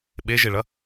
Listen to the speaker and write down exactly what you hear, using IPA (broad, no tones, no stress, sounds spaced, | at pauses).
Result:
ɓ e ʒ e ɭ ɐ